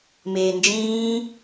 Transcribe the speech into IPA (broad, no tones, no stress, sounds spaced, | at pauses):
m eː n d͡ʒ ĩː